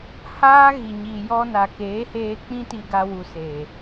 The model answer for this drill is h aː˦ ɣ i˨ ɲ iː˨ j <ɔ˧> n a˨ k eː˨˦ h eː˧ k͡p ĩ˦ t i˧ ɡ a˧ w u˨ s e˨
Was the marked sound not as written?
no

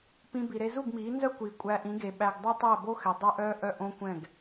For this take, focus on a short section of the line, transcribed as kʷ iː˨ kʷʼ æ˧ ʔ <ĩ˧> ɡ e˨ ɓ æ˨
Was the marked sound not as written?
yes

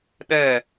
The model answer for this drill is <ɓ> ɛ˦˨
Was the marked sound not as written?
yes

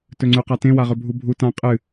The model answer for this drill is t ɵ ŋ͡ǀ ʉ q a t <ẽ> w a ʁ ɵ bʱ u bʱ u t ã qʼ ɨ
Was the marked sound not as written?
no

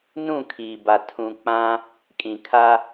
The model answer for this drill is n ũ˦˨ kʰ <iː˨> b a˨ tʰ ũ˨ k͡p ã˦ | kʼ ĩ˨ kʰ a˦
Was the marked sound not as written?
no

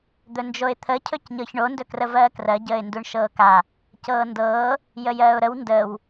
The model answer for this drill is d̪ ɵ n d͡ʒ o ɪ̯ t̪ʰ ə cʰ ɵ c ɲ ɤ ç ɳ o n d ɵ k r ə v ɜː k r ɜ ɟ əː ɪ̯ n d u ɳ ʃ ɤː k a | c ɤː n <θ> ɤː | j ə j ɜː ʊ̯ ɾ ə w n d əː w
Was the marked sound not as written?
yes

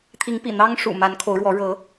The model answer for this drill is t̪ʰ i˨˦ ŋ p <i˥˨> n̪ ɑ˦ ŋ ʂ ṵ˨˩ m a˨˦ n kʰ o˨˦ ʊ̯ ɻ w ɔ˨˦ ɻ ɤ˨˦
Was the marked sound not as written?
yes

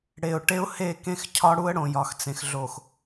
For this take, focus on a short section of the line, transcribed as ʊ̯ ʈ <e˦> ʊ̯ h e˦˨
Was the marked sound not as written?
no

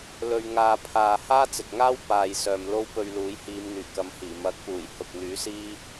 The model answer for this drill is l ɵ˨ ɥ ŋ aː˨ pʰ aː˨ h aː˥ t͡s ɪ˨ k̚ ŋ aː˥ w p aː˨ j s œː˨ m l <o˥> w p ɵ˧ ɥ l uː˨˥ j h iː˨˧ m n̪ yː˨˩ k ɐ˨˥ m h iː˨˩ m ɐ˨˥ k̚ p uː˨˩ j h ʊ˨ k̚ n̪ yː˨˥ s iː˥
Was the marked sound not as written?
no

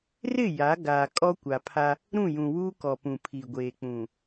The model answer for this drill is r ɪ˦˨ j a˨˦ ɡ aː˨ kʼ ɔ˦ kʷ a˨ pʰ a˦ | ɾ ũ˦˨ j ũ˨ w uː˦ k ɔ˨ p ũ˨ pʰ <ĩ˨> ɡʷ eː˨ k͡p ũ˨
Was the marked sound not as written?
yes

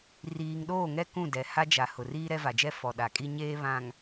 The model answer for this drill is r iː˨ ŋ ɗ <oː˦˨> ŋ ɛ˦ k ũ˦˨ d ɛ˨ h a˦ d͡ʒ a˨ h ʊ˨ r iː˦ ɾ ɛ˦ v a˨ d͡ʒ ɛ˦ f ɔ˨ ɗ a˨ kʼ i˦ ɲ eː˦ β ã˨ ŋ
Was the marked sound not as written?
no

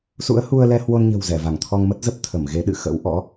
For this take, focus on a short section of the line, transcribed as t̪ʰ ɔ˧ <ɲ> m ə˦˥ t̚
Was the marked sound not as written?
yes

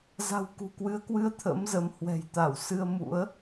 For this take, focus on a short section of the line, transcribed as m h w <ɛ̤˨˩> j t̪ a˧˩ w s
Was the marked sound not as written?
no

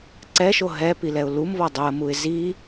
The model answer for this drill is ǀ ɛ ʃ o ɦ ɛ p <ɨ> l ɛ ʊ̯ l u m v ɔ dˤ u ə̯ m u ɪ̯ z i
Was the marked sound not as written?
yes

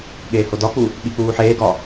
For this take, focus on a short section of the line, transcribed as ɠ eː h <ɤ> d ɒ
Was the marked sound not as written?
yes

